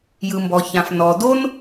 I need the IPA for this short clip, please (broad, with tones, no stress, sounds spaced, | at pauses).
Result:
j ɯ˩ m b ɔ˩ ç ã˩ f n ɔ˩ d o˥ n